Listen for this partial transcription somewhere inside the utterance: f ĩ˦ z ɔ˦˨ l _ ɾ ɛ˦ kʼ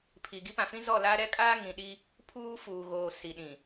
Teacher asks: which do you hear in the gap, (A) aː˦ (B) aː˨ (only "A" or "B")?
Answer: A